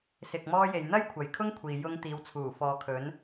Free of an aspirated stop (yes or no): no